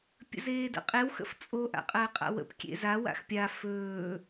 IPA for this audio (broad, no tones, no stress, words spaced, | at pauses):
pʲə̰zeːdə̰qʼew xə̰ft͡sʼo ʔa̰qʼəːqʼa̰wə̰p kʲḛza wa̰xpʲa fɵː